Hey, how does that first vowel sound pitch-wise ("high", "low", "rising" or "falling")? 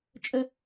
high